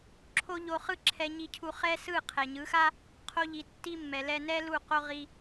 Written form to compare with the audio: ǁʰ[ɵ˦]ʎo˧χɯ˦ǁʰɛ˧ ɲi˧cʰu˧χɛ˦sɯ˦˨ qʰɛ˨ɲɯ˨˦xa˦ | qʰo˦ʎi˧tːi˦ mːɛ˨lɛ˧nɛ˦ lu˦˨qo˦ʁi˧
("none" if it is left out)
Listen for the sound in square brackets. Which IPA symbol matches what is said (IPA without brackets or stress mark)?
o˦